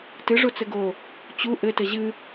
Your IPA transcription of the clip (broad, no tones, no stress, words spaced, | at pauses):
tɨʐo t͡sɘɡo | t͡ɕu ʔɘtɘ ʑɨ